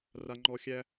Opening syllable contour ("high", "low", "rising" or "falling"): low